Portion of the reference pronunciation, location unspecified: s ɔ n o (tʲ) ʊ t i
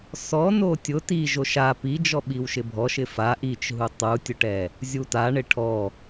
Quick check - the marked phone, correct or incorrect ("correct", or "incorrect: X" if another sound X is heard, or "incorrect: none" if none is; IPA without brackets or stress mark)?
correct